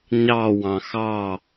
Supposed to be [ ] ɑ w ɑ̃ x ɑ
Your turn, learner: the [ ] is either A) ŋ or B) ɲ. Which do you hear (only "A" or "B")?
B